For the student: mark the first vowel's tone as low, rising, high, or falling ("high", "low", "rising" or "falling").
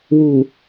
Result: low